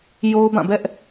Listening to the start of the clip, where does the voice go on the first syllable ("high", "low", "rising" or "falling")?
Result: high